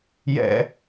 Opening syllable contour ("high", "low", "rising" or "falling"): high